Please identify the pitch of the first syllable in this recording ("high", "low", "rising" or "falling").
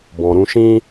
low